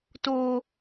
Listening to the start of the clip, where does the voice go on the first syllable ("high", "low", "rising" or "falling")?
high